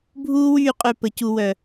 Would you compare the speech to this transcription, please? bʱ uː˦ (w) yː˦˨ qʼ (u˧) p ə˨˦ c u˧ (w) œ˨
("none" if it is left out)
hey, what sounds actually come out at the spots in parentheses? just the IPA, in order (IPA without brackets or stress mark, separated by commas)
w, ø˧, w